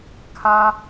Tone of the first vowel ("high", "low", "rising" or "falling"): high